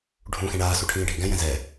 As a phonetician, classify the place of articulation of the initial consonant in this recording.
retroflex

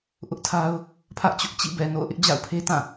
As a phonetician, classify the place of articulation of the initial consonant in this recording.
glottal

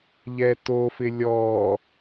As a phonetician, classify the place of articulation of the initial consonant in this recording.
palatal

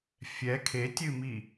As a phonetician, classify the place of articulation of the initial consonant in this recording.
labial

